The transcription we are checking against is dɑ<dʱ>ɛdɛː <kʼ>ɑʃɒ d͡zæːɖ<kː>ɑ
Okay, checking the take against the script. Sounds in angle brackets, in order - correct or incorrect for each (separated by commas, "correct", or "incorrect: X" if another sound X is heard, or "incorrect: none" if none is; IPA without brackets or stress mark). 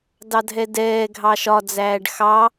correct, incorrect: ɡʱ, incorrect: x